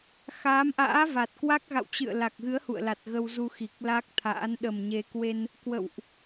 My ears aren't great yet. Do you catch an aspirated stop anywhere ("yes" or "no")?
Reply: yes